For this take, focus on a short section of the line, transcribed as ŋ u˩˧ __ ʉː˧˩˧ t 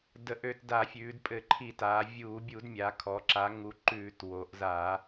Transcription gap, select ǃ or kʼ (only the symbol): ǃ